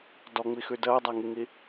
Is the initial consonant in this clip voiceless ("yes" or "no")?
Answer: no